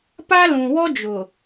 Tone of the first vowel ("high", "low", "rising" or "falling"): high